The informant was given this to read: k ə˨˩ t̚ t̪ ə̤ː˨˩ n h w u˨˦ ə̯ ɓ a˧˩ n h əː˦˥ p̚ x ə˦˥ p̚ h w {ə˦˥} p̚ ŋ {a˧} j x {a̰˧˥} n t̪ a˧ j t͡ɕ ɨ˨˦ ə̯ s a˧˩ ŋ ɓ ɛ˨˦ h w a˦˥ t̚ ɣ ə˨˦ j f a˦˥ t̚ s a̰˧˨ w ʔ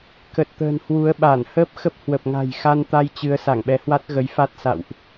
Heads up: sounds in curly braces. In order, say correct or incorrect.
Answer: incorrect, incorrect, incorrect

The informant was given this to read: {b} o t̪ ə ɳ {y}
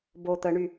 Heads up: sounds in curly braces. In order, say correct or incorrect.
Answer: correct, correct

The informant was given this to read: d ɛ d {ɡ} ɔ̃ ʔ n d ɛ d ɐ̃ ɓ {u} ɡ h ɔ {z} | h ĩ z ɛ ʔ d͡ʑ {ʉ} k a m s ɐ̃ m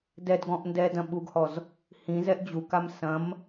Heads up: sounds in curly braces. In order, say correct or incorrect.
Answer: correct, correct, correct, incorrect

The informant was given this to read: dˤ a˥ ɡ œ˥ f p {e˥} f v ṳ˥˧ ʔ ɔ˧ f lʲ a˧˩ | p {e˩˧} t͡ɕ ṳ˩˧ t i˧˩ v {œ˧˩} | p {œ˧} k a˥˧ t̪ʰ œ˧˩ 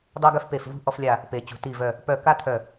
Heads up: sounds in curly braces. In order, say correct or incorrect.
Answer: incorrect, correct, correct, incorrect

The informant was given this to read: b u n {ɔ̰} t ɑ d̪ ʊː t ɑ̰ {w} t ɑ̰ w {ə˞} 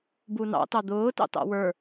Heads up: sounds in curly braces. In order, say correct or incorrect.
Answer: incorrect, incorrect, correct

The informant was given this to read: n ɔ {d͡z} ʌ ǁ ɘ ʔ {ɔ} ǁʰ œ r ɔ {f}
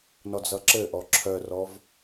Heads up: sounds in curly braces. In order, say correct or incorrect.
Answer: correct, correct, incorrect

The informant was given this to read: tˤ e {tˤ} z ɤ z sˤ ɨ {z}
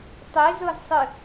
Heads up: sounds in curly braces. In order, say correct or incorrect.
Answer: incorrect, incorrect

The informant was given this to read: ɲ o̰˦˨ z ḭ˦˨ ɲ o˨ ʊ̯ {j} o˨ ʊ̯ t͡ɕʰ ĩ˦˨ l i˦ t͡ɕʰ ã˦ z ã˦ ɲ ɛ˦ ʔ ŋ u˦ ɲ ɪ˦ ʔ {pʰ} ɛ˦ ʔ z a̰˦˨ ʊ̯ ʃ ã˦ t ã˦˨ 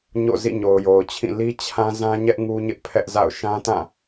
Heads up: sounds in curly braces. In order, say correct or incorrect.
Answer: correct, correct

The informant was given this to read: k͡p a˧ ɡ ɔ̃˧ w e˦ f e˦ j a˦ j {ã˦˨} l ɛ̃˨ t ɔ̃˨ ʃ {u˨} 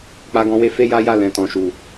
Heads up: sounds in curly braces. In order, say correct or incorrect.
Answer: incorrect, correct

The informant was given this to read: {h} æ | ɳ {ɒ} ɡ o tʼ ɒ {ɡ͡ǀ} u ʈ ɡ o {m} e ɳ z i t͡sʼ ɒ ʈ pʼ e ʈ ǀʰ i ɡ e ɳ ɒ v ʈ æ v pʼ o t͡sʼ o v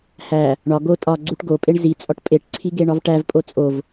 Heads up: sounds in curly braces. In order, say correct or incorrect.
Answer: correct, correct, correct, incorrect

